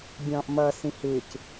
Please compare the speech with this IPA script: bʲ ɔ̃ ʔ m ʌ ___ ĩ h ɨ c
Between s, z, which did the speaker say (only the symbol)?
s